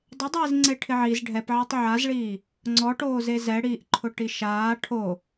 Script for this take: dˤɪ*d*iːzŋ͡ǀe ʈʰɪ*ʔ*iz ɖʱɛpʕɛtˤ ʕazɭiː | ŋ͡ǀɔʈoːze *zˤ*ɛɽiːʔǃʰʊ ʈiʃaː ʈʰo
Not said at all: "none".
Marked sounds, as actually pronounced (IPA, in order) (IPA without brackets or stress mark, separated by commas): dˤ, ʕ, z